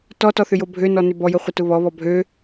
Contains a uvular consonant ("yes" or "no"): yes